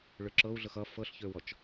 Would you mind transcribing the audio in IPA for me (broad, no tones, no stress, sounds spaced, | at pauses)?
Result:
ɭ ø ǁ ɤ u̯ ɮ ɤ x ʌ f ɤ ɬ ç ø w ɔ t͡ʃ